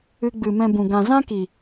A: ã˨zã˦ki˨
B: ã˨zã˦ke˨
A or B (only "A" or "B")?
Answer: A